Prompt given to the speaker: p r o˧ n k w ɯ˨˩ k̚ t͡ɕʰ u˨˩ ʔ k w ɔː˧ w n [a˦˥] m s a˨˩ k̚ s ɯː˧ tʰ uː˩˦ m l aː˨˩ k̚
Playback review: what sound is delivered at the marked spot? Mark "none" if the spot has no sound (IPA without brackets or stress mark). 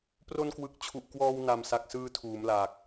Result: a˨˩